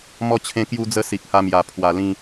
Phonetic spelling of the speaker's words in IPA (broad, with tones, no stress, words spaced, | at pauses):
mɔ˦t͡ɕʰẽ˦kju˦d͡zə˦ si˨k̚ha˧mja˨˩ pʰwa˧lĩ˦